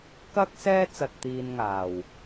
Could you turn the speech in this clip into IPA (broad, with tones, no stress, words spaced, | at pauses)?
kɐ˥k̚sɛː˥ t͡sɐ˧t̚t̪iː˧nŋaː˨w